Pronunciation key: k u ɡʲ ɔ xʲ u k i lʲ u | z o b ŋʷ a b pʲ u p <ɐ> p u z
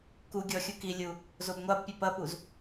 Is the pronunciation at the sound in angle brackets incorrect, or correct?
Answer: correct